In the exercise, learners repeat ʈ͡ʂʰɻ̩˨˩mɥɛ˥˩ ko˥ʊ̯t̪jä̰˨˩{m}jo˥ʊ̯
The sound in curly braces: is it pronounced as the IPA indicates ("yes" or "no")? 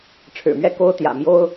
yes